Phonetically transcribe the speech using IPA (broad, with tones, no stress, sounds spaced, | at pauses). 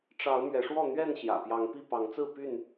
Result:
ʈ͡ʂ ɑ˨˦ ʊ̯ m ɥ ɛ˨˦ ʂ w ɔ˥˨ n̪ ɥ ɛ˥˨ n ɕ j ä̰˨˩ p j ɑ˨˦ ŋ p i˥˨ p ɑ˨˦ ŋ t͡s ɹ̩˥˨ p y˥˨ n